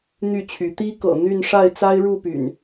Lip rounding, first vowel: rounded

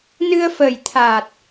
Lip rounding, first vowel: unrounded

